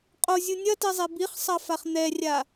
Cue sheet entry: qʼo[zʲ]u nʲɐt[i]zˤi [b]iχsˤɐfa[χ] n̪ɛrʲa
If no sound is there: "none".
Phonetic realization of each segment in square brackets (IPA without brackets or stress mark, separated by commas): zʲ, i, b, χ